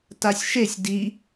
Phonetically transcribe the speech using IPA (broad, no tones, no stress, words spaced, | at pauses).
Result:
tasʲʃesʲ di